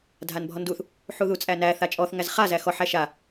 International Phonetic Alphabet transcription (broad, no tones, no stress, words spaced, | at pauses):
dʱanbʱɔnduθ | ħuðut͡sʼænæ θat͡ʃʼɔθ ŋæzχa zæxɔħ æʃa